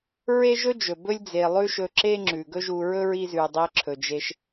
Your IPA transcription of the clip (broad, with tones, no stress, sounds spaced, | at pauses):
ɹ e˦ ʒ ɵ˦ d͡ʒ ɵ˨ b ɵ˦ lʲ d͡z e˨ lˠ ʉ˦ ʃ ɵ˧ ǁ e˦ ŋ͡ǁ ʉ˨ ɡ ɵ˦ ʒ u˧ ɹ ɵ˦ ɹ i˧ z ʉ˨ dˤ e˧ ǁʰ ɵ˨ d͡ʒ e˧ ʃ